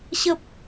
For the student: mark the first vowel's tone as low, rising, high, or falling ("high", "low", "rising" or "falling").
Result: high